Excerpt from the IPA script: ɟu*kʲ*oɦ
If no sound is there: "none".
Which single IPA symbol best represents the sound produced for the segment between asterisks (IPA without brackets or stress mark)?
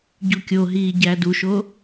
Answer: kʲ